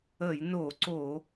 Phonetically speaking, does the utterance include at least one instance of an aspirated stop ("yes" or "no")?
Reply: no